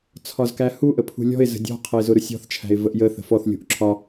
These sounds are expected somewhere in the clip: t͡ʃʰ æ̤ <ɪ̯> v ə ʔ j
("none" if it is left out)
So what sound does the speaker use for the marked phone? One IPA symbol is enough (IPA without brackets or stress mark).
ɪ̯